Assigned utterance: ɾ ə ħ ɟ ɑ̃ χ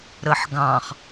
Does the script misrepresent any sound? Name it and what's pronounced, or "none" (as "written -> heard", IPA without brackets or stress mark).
ɟ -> ɡ